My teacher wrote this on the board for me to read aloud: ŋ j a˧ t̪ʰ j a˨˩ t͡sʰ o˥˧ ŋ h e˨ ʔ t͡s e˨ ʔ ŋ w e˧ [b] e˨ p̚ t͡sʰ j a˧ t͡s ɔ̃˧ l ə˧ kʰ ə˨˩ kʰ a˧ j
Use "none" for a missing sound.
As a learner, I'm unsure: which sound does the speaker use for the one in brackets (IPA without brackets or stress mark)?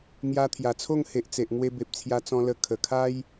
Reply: b